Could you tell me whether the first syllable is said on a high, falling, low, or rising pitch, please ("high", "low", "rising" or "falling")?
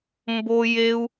high